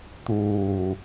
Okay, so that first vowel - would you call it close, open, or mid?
close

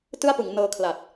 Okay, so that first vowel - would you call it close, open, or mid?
close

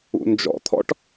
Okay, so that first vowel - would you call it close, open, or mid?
close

